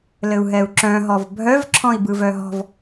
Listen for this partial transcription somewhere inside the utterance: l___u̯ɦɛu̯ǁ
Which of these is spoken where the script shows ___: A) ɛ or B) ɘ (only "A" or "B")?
B